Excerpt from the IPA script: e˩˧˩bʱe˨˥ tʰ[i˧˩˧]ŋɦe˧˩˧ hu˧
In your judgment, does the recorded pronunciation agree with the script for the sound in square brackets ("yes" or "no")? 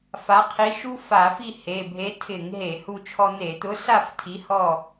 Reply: no